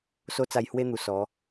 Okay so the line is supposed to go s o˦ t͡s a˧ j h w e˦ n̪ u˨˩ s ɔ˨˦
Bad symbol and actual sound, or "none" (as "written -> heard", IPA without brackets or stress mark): none